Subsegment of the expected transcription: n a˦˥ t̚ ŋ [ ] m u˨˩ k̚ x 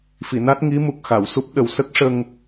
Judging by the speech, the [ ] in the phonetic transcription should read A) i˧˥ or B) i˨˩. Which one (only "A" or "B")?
A